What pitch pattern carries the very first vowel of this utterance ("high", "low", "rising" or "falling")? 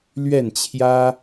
falling